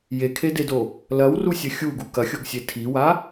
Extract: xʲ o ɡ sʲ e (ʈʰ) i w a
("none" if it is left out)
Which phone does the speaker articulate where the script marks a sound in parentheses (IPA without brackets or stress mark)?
tʰ